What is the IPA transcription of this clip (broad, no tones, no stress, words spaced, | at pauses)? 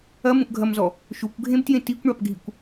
ɐmũʔɡʱɐmzɔ | ʃukʷɡʱẽbtjẽ tikʷɳapɡʱikʷ